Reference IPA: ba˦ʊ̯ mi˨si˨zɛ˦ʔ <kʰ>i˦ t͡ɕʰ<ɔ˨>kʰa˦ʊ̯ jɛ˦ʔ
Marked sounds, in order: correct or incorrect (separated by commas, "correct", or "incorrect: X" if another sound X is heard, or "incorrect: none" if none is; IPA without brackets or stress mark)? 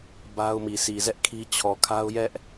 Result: correct, correct